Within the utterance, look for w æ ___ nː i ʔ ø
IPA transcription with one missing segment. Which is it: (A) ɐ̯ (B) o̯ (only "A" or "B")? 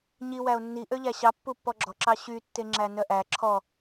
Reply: B